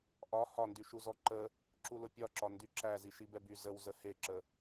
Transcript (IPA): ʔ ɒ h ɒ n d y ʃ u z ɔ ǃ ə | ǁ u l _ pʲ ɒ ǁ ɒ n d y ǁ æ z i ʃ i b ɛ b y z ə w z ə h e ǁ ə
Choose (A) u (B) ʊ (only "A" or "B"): B